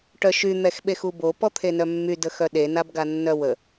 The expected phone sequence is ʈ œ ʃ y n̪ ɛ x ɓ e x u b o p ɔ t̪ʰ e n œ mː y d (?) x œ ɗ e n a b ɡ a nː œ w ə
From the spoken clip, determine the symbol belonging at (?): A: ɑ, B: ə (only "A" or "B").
B